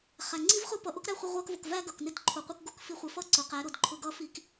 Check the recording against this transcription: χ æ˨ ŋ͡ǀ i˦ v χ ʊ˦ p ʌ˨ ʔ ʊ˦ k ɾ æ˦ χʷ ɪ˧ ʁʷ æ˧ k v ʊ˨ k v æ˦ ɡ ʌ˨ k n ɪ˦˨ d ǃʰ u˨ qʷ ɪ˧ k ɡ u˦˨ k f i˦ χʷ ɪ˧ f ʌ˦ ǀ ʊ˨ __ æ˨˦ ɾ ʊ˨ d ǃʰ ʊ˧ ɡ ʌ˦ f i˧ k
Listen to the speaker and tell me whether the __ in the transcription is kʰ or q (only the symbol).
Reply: q